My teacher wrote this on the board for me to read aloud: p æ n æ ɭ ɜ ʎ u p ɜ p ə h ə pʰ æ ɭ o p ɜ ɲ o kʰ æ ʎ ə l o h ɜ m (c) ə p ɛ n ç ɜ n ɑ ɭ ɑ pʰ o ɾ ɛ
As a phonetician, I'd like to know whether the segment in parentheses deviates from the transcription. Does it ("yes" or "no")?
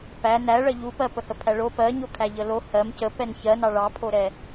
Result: no